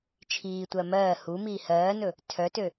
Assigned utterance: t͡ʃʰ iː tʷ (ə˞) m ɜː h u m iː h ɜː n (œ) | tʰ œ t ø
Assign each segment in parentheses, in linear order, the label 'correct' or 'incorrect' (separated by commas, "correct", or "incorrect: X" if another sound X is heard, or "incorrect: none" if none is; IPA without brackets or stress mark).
incorrect: ɜ, incorrect: ɵ